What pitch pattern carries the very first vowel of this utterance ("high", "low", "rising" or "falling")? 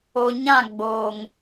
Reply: low